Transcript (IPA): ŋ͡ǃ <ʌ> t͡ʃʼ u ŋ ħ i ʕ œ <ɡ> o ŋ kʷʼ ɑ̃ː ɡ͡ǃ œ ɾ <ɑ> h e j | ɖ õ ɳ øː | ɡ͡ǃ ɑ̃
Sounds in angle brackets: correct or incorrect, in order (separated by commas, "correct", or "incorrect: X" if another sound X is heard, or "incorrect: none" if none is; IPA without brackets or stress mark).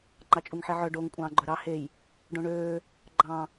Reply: incorrect: ɑ, incorrect: ɖ, correct